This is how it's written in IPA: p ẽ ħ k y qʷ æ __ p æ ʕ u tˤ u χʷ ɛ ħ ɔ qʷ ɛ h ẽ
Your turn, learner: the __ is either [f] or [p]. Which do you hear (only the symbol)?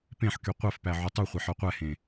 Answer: f